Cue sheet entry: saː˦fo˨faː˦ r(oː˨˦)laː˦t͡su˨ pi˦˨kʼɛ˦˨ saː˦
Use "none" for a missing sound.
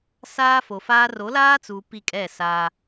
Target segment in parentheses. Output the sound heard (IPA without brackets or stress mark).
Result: o˨˦